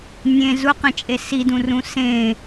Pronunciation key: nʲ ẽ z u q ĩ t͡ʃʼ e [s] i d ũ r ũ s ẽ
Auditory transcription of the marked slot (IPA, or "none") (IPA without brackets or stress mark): s